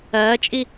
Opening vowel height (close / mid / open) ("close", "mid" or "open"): open